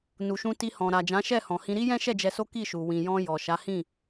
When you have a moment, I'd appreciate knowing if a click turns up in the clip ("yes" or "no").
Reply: no